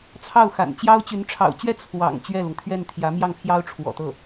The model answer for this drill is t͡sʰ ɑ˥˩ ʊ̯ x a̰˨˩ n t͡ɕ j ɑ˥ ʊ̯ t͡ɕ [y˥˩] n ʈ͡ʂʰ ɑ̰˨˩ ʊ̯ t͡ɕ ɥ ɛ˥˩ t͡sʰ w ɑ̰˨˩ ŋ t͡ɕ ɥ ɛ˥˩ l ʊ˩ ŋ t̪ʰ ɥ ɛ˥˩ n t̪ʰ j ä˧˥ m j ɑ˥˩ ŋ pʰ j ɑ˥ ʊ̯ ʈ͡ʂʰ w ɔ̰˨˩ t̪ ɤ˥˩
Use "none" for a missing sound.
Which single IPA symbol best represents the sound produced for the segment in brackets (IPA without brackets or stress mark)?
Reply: y˧˥